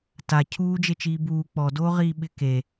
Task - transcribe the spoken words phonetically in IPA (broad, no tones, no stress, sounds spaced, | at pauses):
t a cʰ uː d͡ʒ e t͡ʃ iː b uː k͡p ɔ d oː ʁ iː ɓ ɪ k e